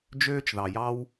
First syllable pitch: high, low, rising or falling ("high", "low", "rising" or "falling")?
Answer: high